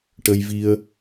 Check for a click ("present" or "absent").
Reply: absent